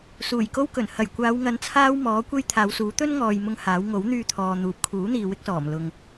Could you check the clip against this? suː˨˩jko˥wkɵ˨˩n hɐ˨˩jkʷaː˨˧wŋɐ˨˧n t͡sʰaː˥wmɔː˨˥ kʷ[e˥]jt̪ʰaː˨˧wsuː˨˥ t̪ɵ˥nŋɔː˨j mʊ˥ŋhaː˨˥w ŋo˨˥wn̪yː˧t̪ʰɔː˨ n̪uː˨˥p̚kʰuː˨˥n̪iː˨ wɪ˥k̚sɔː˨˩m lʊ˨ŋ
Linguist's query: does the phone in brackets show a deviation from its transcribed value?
no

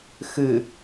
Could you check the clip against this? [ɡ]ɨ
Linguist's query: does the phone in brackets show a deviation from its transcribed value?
yes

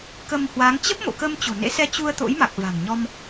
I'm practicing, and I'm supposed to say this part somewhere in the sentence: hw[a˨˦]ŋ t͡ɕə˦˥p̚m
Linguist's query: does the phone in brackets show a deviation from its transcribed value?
no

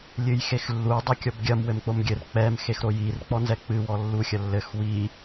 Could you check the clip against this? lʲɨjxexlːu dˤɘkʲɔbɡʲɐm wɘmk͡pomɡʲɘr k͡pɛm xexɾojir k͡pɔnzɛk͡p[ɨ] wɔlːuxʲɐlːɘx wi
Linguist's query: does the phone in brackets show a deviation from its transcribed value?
no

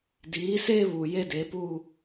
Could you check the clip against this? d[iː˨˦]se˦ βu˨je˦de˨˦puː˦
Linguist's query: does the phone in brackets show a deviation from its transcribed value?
no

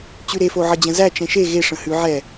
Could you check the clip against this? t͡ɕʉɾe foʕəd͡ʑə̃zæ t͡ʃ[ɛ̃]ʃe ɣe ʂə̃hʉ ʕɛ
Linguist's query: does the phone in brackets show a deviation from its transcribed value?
no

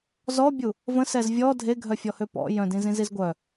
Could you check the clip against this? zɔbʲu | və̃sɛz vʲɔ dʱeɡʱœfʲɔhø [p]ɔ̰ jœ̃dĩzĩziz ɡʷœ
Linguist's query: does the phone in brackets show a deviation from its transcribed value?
no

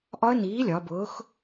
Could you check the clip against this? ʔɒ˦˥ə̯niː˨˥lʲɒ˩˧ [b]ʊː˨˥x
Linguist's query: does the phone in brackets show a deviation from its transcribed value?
no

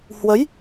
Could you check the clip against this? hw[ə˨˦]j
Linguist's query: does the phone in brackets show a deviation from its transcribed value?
no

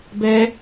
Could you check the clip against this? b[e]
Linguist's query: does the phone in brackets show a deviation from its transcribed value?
yes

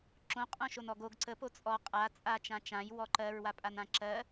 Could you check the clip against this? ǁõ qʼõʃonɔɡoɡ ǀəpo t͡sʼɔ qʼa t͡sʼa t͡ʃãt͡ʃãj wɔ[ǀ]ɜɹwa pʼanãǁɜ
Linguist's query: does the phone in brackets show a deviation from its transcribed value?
yes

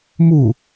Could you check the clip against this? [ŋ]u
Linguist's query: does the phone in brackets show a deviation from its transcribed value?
yes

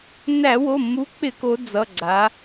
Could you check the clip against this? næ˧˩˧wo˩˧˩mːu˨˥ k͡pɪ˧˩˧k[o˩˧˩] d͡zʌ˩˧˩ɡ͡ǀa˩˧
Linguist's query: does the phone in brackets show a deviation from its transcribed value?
yes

